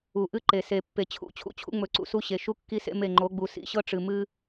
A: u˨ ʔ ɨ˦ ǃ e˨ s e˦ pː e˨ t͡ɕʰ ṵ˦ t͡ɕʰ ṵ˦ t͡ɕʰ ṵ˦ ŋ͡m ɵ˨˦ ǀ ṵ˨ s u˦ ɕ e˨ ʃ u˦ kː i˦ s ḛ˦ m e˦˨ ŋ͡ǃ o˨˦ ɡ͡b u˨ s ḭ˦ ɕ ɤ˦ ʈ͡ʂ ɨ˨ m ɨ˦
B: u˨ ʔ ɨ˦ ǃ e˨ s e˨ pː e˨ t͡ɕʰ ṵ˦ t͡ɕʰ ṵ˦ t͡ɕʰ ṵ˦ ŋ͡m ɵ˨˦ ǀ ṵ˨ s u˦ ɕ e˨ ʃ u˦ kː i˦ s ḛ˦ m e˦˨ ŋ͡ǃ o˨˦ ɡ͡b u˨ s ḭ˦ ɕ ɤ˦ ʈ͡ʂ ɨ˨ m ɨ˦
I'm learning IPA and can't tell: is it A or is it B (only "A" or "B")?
B